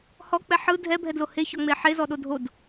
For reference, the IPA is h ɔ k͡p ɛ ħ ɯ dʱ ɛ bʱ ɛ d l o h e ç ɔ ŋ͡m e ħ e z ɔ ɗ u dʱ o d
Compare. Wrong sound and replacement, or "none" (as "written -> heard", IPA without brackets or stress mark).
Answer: u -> o